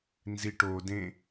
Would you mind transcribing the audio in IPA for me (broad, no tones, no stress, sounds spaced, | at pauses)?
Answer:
n z i ʈ o d ẽ